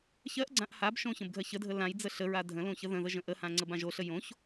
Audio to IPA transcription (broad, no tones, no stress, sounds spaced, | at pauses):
ç ɜ ʔ ɡ͡ǀ ã ʔ h a b ʃ õ ç ə̃ b ɡʱ ɜ ç ə dʱ ə l ã j d͡z ə ɬ ə ɹ a dʱ ə̃ l õ ç ə ð ə̃ ð ə ʒ ə̃ ʔ ə h ã ŋ͡ǀ ə b ã ʒ o ɬ ə j õ ç